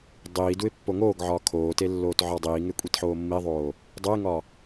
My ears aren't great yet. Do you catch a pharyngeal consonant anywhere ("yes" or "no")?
yes